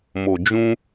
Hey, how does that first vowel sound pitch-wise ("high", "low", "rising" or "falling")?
low